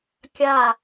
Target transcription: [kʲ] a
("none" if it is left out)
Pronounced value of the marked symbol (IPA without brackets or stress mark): kʲ